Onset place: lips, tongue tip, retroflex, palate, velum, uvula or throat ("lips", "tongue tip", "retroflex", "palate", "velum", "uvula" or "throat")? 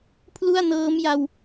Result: lips